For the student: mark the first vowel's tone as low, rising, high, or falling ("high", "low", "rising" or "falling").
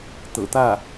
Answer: low